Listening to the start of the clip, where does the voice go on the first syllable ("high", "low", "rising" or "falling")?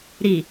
low